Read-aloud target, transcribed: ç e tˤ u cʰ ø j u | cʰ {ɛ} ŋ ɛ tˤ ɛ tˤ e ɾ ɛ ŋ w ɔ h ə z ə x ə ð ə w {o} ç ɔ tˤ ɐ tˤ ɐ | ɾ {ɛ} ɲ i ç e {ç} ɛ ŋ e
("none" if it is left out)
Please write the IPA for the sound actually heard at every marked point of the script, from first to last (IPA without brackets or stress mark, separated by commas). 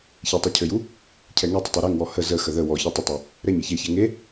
ɛ, ɔ, ɛ, ç